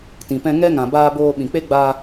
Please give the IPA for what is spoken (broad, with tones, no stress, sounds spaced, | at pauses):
t ĩ˨ p ɛ̃˧ ŋ ɛ˦ ŋ ã˨ b aː˧ b oː˧ ɓ ĩ˨ k͡p e˦ ɡ͡b a˧